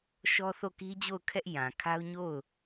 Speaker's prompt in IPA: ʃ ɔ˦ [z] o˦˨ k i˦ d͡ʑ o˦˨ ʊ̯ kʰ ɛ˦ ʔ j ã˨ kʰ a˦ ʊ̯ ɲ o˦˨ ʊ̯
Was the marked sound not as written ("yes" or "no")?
yes